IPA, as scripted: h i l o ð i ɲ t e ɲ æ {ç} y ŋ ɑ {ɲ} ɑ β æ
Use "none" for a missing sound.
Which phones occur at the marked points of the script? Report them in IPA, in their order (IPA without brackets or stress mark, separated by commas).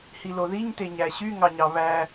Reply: ɕ, ɲ